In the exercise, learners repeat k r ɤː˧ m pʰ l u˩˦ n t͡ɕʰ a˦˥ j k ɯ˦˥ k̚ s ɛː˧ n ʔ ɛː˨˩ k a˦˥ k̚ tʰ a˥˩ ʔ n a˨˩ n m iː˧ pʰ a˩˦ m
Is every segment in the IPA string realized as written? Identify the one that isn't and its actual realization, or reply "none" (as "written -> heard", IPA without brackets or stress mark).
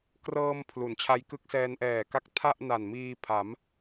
none